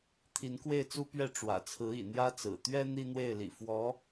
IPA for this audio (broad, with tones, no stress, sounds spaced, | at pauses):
t̪ʰ i˧˥ n k w e˥˩ ɪ̯ t͡s u˥ p ɥ ɛ˥˩ ʈ͡ʂ w ä̰˨˩ t͡sʰ ɹ̩˧˥ ḭ˨˩ n̪ j ä˥ t͡s ɹ̩˨˩ t̪ ɥ ɛ˥ n̪ i˥ n̪ w e˥˩ ɪ̯ l ḭ˨˩ f w ɔ˧˥